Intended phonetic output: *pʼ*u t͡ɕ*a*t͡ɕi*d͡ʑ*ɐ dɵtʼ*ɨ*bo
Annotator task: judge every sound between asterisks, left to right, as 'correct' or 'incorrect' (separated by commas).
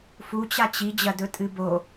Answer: incorrect, correct, correct, correct